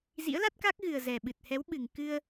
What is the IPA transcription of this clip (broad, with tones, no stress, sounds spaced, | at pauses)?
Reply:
z ḭ˧˥ ə̯ l a˦˥ t̚ k a˦˥ k̚ ɣ ɨ˨˩ ə̯ z ɛ˨˩ ɓ ɨ˨˩ t̚ h ɛ˨˦ w ɓ ɨ˨˩ ŋ k ɨ˧ ə̯